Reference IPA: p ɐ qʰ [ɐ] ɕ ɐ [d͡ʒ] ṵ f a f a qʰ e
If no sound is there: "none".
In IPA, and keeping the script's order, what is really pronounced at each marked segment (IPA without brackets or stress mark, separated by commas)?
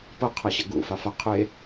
ɐ, ɡ